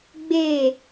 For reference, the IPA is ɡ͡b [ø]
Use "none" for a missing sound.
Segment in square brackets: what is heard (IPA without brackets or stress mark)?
e